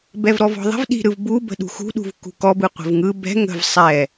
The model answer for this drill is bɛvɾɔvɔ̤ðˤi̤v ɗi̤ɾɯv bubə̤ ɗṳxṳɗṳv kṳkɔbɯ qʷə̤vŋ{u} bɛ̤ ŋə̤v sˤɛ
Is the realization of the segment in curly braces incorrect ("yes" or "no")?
yes